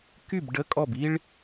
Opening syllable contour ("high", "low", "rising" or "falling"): falling